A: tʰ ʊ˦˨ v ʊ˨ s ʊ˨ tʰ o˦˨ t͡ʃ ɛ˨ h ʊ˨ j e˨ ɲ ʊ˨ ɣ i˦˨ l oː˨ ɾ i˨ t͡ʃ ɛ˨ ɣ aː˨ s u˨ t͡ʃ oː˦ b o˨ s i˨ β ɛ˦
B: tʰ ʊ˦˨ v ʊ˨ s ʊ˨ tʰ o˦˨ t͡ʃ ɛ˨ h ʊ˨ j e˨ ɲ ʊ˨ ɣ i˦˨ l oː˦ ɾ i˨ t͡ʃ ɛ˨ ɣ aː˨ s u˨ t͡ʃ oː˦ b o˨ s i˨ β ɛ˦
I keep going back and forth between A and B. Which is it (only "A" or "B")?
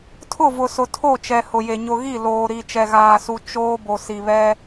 A